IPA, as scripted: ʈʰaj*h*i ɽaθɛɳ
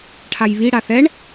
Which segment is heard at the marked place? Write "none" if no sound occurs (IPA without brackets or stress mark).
β